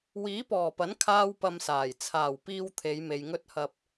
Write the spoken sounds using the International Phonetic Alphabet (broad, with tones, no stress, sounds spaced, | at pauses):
w iː˨˥ p ɔː˨˩ p ɐ˨˥ n kʰ aː˥ w p ɐ˧ m s aː˨˩ j t͡sʰ aː˨˩ w p iː˧ w t̪ʰ e˨˧ j m e˨ j ŋ ɵ˥ t̚ h ɐ˧ p̚